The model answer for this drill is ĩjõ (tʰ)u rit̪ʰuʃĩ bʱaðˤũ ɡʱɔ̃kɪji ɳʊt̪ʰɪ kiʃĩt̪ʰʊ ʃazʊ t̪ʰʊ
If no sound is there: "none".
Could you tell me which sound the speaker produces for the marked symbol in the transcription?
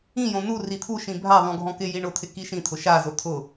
n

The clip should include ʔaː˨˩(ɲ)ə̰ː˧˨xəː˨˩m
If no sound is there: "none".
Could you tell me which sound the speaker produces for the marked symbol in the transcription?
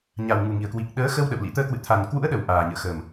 ɲ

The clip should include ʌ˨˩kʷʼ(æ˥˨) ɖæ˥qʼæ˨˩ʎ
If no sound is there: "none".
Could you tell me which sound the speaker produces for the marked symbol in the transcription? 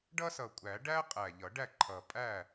æ˨˩˦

